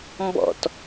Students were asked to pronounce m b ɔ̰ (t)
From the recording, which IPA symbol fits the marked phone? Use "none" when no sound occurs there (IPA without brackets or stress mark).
t